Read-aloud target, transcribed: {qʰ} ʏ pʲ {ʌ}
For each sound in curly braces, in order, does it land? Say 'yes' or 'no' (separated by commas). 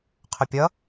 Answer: yes, yes